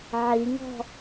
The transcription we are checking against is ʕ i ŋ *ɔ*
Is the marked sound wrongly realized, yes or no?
yes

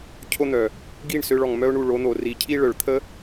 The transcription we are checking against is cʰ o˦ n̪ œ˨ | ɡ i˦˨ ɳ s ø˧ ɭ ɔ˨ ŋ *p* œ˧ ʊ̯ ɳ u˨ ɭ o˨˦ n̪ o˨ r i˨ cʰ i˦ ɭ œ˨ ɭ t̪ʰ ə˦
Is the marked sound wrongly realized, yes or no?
yes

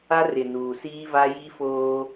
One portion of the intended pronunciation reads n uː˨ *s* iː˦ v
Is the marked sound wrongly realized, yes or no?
no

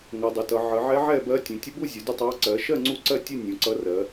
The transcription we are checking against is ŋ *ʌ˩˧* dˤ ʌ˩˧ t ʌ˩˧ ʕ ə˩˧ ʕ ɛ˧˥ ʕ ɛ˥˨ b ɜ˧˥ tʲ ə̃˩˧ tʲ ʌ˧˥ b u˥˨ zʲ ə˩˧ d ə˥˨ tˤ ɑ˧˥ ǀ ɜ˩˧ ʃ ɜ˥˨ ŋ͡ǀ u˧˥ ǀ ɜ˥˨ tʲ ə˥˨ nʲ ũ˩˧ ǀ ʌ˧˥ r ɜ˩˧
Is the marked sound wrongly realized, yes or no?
no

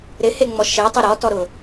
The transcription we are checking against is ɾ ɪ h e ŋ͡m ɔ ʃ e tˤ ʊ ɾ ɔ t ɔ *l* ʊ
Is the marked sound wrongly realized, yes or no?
yes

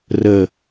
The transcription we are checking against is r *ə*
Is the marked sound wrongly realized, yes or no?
no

